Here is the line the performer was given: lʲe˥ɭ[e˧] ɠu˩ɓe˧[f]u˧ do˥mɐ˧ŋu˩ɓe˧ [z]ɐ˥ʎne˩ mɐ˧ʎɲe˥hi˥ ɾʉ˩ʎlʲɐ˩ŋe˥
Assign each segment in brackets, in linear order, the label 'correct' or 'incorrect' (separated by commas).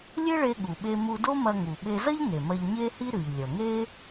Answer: correct, incorrect, correct